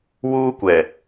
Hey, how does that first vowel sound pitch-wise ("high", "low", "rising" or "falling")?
high